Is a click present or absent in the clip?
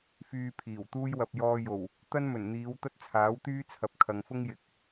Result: absent